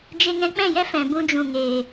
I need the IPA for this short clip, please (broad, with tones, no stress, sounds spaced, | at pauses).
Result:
d͡ʒ e˧ ŋ ɛ̃˧ k͡p ɛ̃˦˨ j ɛ˦ f ɛ̃˨ b ũ˧ d͡ʒ ũ˨ ŋ eː˨